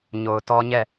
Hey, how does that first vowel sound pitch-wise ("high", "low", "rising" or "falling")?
low